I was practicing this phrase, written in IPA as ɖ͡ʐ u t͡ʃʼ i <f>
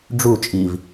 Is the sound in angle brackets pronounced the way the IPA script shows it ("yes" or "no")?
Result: no